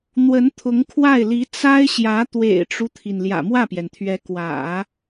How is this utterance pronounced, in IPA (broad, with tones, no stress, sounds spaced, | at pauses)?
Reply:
n̪ w ə˧˥ n t̪ʰ ʊ˧˥ ŋ kʰ w a˥˩ ɪ̯ l i˧˥ t͡s a˥ ɪ̯ ɕ j ä˧˥ t̪ w ḛ˨˩ ɪ̯ ʈ͡ʂ u˦ t̪ʰ i˩ n l j ä̰˨˩ m w ä˥˩ p j ɛ˩ n t̪ʰ ɥ ɛ˧˥ k w ä̰˨˩˦